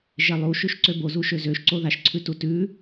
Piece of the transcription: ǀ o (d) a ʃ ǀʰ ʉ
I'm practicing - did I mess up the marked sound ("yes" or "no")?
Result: yes